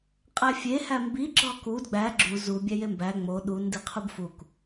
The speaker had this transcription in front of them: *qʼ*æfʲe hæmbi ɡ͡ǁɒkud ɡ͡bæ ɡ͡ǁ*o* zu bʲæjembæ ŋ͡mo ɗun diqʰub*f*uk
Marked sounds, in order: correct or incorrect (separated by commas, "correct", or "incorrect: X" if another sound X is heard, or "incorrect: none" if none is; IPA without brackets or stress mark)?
correct, incorrect: u, correct